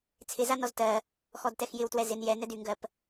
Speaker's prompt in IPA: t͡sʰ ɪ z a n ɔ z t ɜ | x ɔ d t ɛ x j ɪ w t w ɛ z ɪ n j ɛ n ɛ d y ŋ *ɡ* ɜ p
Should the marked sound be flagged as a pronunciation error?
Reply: no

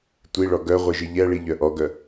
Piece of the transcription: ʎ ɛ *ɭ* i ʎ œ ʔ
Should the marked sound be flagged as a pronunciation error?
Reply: no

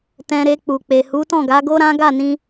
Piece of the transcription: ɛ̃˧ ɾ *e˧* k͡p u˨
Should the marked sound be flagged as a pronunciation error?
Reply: no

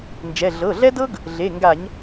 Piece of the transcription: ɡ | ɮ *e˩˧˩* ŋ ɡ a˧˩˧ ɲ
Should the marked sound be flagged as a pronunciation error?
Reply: no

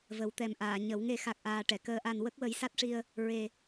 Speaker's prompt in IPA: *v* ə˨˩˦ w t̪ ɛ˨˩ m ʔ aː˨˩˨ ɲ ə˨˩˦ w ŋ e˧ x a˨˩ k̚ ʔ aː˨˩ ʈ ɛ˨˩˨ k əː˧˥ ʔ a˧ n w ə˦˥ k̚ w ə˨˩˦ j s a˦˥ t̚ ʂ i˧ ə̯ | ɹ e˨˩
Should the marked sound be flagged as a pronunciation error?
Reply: no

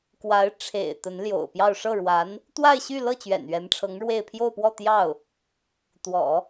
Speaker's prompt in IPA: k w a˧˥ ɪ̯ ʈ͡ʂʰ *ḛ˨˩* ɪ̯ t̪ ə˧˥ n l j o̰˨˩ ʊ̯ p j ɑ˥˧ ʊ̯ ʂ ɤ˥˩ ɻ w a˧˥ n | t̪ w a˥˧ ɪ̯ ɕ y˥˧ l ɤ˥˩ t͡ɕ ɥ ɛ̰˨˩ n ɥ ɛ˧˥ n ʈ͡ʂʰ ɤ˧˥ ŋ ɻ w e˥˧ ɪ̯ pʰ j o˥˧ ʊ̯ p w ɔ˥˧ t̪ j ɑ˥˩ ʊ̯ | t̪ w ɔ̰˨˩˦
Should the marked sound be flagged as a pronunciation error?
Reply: no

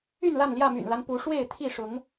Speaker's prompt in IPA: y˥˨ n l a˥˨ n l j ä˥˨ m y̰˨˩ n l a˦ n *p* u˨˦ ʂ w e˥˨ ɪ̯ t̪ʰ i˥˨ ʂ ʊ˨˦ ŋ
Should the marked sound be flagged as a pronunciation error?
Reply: no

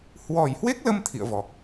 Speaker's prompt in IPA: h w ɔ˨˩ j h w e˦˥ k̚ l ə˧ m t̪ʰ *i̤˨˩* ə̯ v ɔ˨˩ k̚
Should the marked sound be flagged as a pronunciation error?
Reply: yes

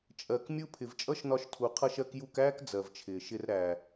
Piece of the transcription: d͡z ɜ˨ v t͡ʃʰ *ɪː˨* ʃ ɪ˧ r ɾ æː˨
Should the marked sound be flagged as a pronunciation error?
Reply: no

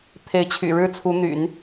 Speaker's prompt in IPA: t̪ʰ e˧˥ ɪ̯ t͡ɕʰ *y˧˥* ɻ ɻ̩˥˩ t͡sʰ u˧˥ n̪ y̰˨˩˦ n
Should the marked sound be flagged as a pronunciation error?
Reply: yes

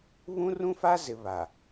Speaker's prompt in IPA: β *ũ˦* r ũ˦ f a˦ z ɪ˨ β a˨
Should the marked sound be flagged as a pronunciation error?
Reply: no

